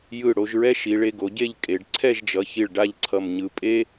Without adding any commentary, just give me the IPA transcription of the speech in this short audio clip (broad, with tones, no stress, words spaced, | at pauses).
jɯ˧˩ ɽo˧ʒɹɛ˥ ʃi˩˧ɭe˧ɡo˩˧ɟe˥˧ʎ kʼe˩˧ɖ ǀʰɛ˥˧ʒd͡ʒʌ˩˧çi˧˩ɭ ɖa˥˧ʎǀʰʌ˧˩mɲɯ˧˩ pʼe˥